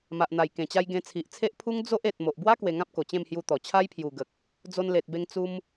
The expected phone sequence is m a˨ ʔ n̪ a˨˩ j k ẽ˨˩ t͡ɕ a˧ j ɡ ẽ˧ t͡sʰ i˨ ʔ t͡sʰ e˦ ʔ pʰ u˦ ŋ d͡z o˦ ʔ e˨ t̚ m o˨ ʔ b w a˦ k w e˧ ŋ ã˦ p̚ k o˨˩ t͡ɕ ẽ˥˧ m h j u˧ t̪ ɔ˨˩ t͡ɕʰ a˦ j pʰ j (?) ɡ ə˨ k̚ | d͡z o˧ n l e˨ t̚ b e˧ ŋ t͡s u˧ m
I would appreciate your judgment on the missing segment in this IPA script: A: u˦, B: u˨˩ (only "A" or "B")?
B